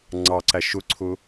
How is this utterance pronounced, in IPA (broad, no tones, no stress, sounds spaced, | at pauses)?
ŋ͡ǀ ɑ ǀ æ ʃ ʊ ǀʰ ʊ